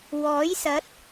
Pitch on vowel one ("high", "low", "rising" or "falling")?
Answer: rising